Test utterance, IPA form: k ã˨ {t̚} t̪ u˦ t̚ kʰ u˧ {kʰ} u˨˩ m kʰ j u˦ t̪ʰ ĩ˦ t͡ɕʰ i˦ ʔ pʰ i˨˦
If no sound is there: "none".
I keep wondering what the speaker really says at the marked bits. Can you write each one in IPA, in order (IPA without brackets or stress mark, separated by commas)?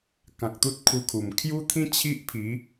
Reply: k̚, kʰ